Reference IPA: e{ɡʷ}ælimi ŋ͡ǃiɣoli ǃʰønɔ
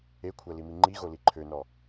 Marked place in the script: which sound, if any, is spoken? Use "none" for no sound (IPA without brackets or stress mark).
kʷʰ